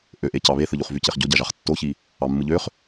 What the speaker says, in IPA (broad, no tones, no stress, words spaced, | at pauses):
ʔøʔecɑ βeθɯʎuχ vyceχɟo ɟɑʒɑχtːoçi | ɑmːɯʎøχ